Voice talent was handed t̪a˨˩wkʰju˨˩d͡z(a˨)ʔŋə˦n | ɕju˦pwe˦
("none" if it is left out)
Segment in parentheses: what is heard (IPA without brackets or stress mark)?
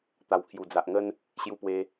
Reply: a˨